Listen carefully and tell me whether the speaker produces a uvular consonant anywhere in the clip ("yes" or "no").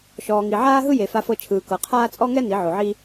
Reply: yes